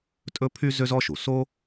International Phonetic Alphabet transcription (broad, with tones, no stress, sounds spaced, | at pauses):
tʼ ɵ˥ pʰ y˥ z ø˥ z ɔ˥ ʃ u˩ s o˥